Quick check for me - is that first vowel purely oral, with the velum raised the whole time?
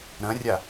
no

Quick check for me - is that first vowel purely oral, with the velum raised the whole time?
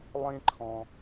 no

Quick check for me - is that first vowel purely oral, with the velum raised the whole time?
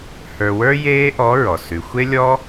yes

